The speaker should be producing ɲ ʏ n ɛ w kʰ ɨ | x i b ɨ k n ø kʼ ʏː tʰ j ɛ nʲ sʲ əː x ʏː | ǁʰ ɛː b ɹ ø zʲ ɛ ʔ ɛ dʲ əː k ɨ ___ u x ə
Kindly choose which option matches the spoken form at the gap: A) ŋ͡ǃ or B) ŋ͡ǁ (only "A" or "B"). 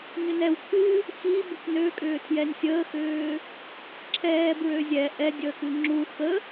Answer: B